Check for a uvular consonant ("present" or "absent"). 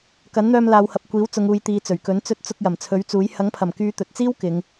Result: absent